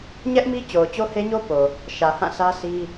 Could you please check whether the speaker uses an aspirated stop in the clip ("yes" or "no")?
no